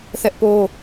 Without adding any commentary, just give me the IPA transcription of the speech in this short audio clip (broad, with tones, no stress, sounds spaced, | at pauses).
θ ɛ˦ ʔ p o˦